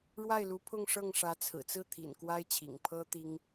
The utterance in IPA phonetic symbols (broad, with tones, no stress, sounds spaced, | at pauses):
ɻ w a˥˩ ɪ̯ l u˧˥ pʰ ʊ˥˧ ŋ ʂ ɤ˥˩ ŋ ʂ ä˧˥ t͡sʰ ɹ̩˨˩ t͡s ɹ̩˥˩ t̪ʰ ḭ˨˩ n k w a˥ ɪ̯ t͡ɕʰ ḭ˨˩ ŋ pʰ ɤ˥ t̪ i˥ ŋ